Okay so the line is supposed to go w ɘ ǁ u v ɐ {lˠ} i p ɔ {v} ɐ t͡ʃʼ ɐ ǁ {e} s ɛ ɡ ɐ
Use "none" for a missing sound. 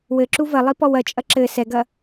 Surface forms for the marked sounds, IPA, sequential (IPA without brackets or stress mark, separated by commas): lˠ, w, ɘ